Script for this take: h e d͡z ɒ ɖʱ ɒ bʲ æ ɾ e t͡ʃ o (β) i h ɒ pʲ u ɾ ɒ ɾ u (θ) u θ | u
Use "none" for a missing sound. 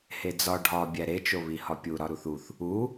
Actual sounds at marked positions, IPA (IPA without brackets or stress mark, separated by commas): β, θ